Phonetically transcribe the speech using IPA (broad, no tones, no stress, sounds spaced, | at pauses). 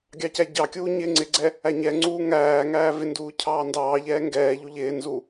ɡʲ ɑ c æ ɟ ɑ kʲ uː ɲ ɪː ŋ͡ǀ ɪ ɡ͡ǀ ɛ | æ ɲ ɛ ŋ͡ǀ uː ŋ æː ŋ æː v ɪ n d uː cʰ ɑː n d ɑː ʎ ɛː ŋ ɡ ɛː ʎ u ʎ ɪː n z u